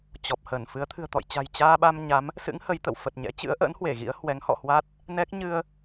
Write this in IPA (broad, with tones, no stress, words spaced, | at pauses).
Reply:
t͡ɕɔ˨˩p̚ hə˧˩nfɨ˨˦ə̯ t̪ʰɨ̤˨˩ə̯t̪ɔ̰˧˨jt͡ɕa̤˨˩j t͡ɕaː˧ɓa˧m ɲa˨˦m | sɨ̰˧˥ŋ hə˨˦jt̪ə̰˧˨w fə˨˩t̚ɲɛ̰˧˥ t͡ɕɨ̰˧˥ə̯ʔə̰ː˧˥nhwe˧˩ ɣḭ˧˥ə̯hwɛ˨˦ŋ hɔ̰˧˨hwa˦˥t̚ | nɛ˦˥k̚ ɲɨ˧ə̯